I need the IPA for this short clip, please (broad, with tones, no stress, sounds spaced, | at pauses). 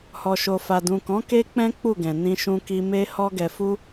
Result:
h ɔ˨ ʃ o˨ f a˨ d ũ˨ k ɔ̃˨˦ k e˦ k͡p ɛ̃˦ k͡p u˦˨ ɡ ɛ̃˨ n ĩ˧ ʃ ũ˧ k i˧ m e˧ h ɔ˧ ɡ ɛ˨ f u˧